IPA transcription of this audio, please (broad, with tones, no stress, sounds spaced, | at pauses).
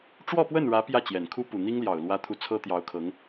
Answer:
ʈ͡ʂ w ɔ˥˧ p w ə˥˩ n ɻ ä˧˥ p j ä˥˩ t͡ɕ j ɛ˨˩ n kʰ u˥ p u˨˩ n̪ i˥ ŋ l j ɑ˨˩ ʊ̯ l w ä˥ t̪ʰ u˥˩ t͡sʰ ɤ˥ t̪ j ɑ˧˥ ʊ̯ kʰ ɤ˧˥ ŋ